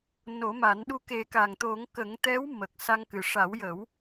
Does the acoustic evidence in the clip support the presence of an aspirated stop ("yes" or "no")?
no